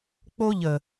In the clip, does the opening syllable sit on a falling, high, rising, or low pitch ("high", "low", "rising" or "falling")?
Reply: high